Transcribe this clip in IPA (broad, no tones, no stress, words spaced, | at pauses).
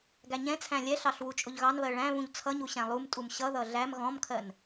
ɡæɲɛ̃t͡sʰæ̃ lʲɛɬɑɬ wut͡ʃʼʊʎɣɑnβɜ ɭæ̃βũʎ t͡sʰʌɲu ɕæ̃lˠumtʼum ɕʌðʌ ɮæm ɣɔ̃mkʰɜn